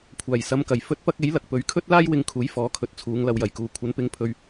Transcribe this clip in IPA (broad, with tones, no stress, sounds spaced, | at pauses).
kʷʰ aː˨˩ j s ɐ˨˧ m k ɐ˨˩ j f ɵ˥ t̚ p ɐ˥ k̚ e˨˥ j l ɐ˨ k̚ p ɵ˨˧ ɥ kʰ ɵ˥ t̚ l aː˥ j w ɪ˧ ŋ kʰ uː˨˥ j f ɔː˨˥ kʰ ɵ˨˥ t̚ t͡sʰ uː˨˧ ŋ l ɐ˨ w j ɐ˨ j k uː˨˧ kʷʰ ɐ˨˥ n p ɪ˨˥ ŋ pʰ ɵ˧ ɥ